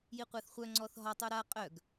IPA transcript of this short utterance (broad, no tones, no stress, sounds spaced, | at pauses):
j i qʷ a θ χʷ œ ŋ͡ǀ ɔ θ ɦ ɔ tˤ u ɾ a qʼ œ ɡ